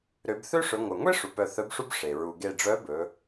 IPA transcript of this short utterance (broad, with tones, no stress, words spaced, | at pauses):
ɾø˩˧bθø˥ʂɵ˩˧ ŋʷœ˩ŋʷe˥ ʂu˩pœ˧˩θœ˧˥bʂu˥b ʂe˩ ɹu˩ɡe˧˩ɖ͡ʐœ˧˥bɵ˩˧